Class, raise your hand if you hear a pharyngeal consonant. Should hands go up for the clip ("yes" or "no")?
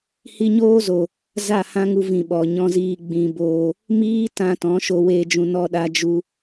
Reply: no